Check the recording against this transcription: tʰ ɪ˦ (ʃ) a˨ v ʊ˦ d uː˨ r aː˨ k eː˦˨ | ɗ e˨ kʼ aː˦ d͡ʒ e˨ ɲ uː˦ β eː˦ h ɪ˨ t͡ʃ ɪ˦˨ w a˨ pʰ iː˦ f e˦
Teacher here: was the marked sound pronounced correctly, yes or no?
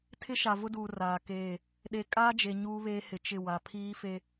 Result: yes